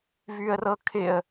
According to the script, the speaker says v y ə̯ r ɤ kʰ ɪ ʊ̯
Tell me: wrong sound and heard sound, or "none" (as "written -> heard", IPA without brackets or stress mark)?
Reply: ʊ̯ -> ə̯